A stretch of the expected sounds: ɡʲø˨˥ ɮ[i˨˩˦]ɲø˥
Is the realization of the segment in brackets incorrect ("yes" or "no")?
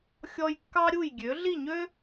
yes